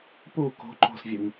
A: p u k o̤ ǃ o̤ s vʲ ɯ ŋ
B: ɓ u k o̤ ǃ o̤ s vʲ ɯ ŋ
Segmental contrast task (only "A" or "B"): A